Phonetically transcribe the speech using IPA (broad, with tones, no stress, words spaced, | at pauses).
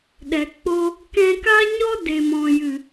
ɗɛ˨k͡po˧ | kɛ̃˧ka˦ɲɔ˦ de˨mɔ̃˨jɨ˨